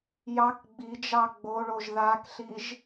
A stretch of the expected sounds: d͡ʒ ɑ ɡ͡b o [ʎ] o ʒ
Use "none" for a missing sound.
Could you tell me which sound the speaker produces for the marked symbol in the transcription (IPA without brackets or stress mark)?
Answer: ɭ